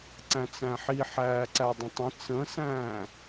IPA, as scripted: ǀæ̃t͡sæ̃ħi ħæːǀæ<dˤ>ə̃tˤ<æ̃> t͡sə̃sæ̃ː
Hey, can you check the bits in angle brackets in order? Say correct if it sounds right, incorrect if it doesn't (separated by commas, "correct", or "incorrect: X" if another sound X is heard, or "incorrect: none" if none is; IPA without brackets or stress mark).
correct, incorrect: ə̃